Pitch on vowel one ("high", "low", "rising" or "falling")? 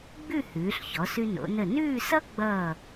falling